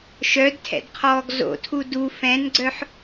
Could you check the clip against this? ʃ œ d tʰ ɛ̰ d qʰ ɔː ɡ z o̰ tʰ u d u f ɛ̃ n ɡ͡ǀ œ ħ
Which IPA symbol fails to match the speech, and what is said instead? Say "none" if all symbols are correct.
none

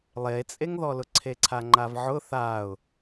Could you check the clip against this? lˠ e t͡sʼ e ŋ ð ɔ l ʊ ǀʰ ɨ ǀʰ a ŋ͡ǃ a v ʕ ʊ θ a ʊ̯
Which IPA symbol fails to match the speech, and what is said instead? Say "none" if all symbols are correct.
ɨ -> e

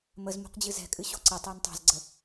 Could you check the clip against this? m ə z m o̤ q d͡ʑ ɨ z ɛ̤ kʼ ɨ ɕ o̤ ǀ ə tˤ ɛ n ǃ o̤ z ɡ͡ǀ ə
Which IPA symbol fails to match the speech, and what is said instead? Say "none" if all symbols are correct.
ǃ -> tˤ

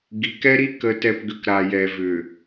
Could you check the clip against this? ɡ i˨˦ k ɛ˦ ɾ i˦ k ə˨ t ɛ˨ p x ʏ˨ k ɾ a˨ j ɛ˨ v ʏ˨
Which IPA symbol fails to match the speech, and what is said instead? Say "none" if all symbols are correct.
x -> ɡ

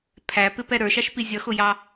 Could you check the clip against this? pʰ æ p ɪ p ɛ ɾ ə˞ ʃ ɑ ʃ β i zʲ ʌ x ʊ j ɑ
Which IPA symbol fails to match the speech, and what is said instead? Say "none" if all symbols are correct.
β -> p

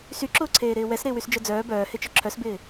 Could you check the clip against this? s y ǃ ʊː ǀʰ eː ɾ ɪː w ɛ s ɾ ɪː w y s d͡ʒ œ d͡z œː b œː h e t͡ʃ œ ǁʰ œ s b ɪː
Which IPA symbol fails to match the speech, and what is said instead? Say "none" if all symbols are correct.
ǃ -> ǁ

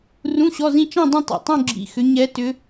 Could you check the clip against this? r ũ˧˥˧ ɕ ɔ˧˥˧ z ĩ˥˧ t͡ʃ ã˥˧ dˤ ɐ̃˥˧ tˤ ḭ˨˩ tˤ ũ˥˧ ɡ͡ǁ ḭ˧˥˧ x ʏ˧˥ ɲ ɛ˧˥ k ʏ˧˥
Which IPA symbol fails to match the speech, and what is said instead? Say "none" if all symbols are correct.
k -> t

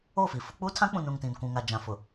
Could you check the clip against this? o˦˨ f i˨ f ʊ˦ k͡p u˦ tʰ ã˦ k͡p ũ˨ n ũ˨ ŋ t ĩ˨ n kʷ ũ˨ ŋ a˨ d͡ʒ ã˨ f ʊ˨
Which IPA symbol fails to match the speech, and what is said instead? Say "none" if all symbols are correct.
none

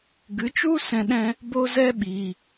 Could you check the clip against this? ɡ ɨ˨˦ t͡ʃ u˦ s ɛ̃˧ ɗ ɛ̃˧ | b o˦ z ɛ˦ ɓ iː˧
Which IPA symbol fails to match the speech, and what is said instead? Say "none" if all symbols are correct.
none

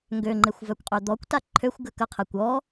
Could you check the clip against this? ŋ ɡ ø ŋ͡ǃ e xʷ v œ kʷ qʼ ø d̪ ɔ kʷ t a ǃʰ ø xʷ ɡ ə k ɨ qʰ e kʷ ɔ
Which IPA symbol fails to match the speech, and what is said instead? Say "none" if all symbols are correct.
ɨ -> ə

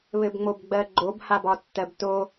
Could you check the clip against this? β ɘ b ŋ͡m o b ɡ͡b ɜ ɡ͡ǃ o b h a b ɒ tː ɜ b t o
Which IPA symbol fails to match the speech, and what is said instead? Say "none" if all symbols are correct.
none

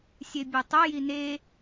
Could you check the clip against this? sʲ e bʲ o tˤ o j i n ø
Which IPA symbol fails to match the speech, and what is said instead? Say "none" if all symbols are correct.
ø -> e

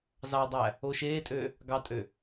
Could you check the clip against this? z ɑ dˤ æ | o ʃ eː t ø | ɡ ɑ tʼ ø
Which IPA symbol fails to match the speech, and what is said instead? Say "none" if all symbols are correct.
t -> tʼ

